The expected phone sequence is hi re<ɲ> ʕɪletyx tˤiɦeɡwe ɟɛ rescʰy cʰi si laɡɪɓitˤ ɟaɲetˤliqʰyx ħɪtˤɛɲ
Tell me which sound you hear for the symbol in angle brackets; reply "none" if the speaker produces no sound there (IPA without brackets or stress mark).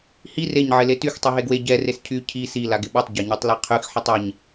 ɲ